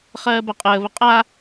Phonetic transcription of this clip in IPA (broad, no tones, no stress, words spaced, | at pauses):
χɜːbɜqʼəː βəqʼa